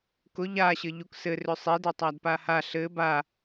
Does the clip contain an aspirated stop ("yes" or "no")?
no